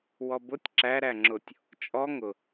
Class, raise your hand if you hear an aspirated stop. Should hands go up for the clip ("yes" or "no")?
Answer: no